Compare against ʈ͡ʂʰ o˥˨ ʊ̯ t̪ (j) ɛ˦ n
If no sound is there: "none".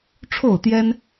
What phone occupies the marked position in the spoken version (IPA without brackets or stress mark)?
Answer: j